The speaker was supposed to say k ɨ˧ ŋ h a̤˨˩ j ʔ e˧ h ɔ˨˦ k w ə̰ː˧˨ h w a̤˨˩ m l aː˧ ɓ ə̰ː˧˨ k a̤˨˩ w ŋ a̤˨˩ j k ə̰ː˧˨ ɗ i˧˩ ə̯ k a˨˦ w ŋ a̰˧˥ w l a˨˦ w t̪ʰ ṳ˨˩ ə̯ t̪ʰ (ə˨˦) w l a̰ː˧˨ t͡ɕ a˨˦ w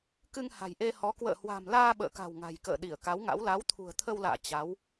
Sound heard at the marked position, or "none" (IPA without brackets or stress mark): ə˧